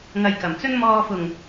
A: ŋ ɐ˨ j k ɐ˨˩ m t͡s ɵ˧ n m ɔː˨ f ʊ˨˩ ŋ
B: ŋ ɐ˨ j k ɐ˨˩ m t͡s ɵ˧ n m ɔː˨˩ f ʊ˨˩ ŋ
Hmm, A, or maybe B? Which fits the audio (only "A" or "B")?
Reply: A